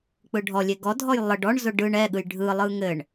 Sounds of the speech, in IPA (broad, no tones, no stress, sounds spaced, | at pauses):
k͡p ɯ ɖʱ ɔ lʲ e ɡ ɔ dʱ ɔ j lˠ ə ɖ ɔ ɳ z ʊ ɖ ɯ ɳ ɛ ɠ ɯ j ɖʱ ɯ lˠ ɯ ŋ ɘ ɳ